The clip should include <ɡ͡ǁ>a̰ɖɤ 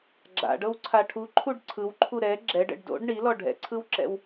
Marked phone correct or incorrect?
correct